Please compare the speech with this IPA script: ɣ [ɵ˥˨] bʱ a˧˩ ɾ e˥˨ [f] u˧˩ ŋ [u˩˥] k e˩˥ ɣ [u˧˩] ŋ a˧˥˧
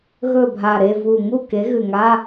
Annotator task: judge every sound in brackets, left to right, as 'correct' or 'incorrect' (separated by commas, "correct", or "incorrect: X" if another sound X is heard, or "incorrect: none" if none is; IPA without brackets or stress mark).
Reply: correct, incorrect: v, incorrect: u˥˨, incorrect: ʉ˧˩